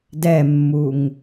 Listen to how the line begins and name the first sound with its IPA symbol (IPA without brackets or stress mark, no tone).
d